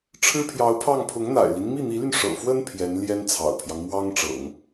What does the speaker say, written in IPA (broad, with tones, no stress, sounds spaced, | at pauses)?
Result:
ʈ͡ʂʰ ɻ̩˥ pʰ j ɑ˧˥ ʊ̯ pʰ ɑ˥˩ ŋ pʰ ʊ˧˥ ŋ n̪ a̰˨˩ ɪ̯ l i˦ n m i˥˩ n̪ i˧˥ l y˧ n ʂ ɤ̰˨˩ f w ə˥ n pʰ j ɛ˧˥ n l j ɛ˥ n t͡sʰ ɑ̰˨˩ ʊ̯ pʰ j ɑ˦ ŋ m w ɑ˥ ŋ ʈ͡ʂ ɤ̰˨˩˦ ŋ